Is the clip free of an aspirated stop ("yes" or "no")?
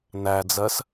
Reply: yes